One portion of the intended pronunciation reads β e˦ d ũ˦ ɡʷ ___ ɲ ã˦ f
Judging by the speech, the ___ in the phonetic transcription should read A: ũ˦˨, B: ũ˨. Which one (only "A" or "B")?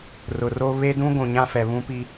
B